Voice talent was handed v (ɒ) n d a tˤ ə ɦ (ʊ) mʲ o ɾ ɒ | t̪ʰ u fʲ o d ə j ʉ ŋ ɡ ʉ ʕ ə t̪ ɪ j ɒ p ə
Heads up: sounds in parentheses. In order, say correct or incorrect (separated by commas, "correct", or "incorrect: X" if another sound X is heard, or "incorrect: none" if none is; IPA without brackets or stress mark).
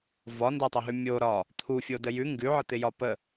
correct, incorrect: ʉ